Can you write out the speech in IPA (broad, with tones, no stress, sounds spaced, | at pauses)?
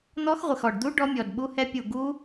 n̪ ɔ˦˥ x ʁʷ ɪ˧˩ x ɔ˧˩ ɖ d̪ u˦˥ ɖ ɔ˦˥ mʲ ɔ˧˩ d ɓ u˦˥ h ɛ˦˥ pʲ u˧˩ ɡ u˦˥